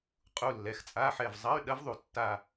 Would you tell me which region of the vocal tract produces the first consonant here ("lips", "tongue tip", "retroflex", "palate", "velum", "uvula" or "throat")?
uvula